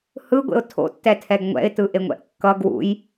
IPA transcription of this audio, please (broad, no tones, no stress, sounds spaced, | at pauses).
h ɯ ɡʷ ḛ ʊ̯ tʰ o̰ tː ɛ tʰ ɛ ɡ ŋʷ ɛ̰ ɪ̯ t ɯ ʔ e ŋʷ ɛ̰ ʔ kː ʌ ɡ w ṵ j